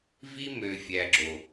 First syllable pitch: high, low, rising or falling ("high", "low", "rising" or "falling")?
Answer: high